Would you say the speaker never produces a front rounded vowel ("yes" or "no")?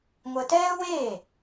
yes